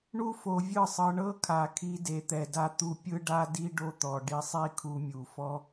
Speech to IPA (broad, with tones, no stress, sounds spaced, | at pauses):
ɳ u˦ f o˧ vʲ ɯ˦˨ sˤ ɤ˧ ɳ ɤ˦ kʰ a˨ kʰ i˧ d e˨ t̪ ɛ˨ d a˧ t̪ u˦ pʲ ɯ˦ ɖ a˦ d i˦ ɖ o˦ t̪ ɔ˨ ɖ i˧ sˤ i˦ kʰ u˧ mʲ u˨ f ɔ˦